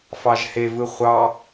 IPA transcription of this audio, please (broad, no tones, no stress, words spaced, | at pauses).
fɑʒhevɯ χʷɑ